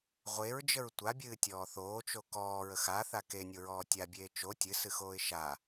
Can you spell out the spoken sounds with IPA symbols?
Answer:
ʁʷ e ɹ d͡ʒ ə ɹ tʷ a bʲ ɨː tʲ ɔː θ oː t͡ʃ o k ɔː ɹ ə x a θ a k e nʲ o ɹ ɔː tʲ a bʲ eː t͡ʃ o tʲ ɨ s ɨ x oː ɪ̯ ʃ a

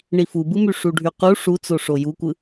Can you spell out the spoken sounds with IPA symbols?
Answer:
ɳ i f u b ɯ m y ʂ u ɖʱ y q u ʂ u t͡s o ʂ o j u kʷ ɯ

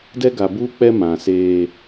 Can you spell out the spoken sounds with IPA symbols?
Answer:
d ɛ˦ ɡ a˨ b uː˦ k͡p ɛ˦ m ã˨ s eː˦

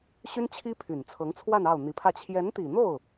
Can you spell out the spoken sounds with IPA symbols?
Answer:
ɕ y˥ n t͡ɕʰ i˥ pʰ y˨˩ n t͡sʰ ɤ˧˥ ŋ t͡sʰ w a˥˧ n ɑ˥˩ ʊ̯ n̪ i˧˥ pʰ ä˥˩ t͡ɕʰ j ɛ˧˥ n t̪ i˨˩ n̪ o˥˩ ʊ̯

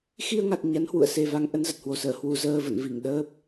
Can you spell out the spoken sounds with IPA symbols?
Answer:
x i˧ ə̯ ŋ a˨˩ t̚ ɲ a˨˦ n h w ṵ˧˨ ə̯ s e˨˩ v a˨˦ ŋ ʔ ə˨˦ n z ə˨˩ t̚ h w o˨˩ s əː˧˩ h w u˨˩ z əː˧ v ə̰˧˨ n v i˧˩ ŋ ɗ əː˦˥ p̚

